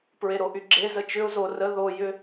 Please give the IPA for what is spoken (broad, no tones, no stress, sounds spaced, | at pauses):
p ɹ e ɾ o ʔ y ɡ͡ǁ e z ə t͡ʃ ʏ ʊ̯ z o r ə ð o j ʏ